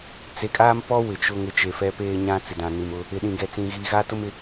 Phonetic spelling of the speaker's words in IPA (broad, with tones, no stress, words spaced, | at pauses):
t͡se˨kʼaː˦mpɔ˦ wɪ˨t͡ʃʊ˦ŋɪ˦ t͡ʃe˨fɛ˦peː˦ɲã˦ t͡sɪ˨dã˨ ni˨mʊ˦ | ɪ˨ɗĩ˨ɡɛ˨ t͡sĩ˨ɣiː˨ɣa˦ tʊ˦mɪ˨